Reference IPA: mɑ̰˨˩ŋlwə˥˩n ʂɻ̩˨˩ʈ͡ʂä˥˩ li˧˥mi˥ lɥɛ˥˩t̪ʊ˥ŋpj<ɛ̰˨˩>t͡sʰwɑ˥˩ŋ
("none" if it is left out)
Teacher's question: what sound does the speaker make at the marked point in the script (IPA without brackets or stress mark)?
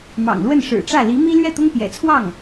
ɛ̰˨˩